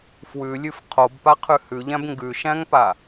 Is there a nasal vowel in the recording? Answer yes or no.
yes